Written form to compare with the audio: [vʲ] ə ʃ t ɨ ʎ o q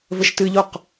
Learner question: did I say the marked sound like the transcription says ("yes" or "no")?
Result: no